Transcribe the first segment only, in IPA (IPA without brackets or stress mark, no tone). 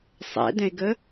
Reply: sˤ